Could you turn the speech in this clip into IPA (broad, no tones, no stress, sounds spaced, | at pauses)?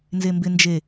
n z e m b ɪ n d͡ʒ e